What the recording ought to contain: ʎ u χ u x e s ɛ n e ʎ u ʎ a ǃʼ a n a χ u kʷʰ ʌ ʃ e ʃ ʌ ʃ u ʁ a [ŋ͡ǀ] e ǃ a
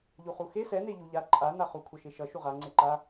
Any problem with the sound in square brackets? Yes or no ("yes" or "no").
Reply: no